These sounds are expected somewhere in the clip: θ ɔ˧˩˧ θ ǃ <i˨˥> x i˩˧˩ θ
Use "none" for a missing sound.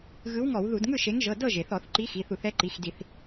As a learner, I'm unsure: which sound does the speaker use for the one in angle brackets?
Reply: i˨˥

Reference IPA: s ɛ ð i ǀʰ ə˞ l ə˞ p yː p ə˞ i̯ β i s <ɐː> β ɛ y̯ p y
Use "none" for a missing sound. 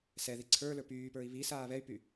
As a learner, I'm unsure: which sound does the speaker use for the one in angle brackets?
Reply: aː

